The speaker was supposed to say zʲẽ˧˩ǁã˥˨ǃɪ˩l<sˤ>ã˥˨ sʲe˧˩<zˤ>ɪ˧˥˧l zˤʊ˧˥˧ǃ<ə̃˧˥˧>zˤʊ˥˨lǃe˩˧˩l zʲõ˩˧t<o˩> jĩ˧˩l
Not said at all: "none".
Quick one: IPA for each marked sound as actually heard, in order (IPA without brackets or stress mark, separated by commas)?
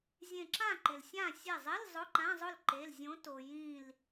sʲ, zˤ, ã˧˥˧, o˩